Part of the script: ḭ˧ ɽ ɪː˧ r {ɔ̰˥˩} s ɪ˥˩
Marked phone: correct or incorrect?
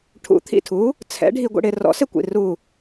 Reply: incorrect